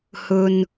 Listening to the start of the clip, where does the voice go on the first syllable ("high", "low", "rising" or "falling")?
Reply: low